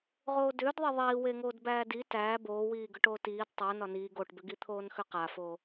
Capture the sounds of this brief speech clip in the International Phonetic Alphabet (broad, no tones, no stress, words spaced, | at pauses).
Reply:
ʁoːdʏːd ðˤeðˤiːweŋoːd bæːdi tæː boːwiː ɡʏʈoːtiːd tˤo nɒniː ɡoʈbʏɡi t̪ʰoːnxʏqafo